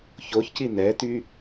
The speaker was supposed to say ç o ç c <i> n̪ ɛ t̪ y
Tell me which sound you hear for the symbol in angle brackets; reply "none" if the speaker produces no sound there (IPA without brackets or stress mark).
i